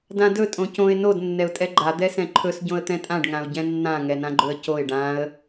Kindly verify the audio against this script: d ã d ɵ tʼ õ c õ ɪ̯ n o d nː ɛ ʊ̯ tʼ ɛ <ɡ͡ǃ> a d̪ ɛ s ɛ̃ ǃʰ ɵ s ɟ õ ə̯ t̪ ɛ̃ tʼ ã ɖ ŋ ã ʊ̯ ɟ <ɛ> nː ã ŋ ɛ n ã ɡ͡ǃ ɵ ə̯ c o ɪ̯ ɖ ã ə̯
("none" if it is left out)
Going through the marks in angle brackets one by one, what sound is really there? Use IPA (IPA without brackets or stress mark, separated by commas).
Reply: ɡ͡ǃ, ɛ̃